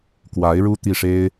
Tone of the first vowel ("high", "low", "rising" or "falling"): rising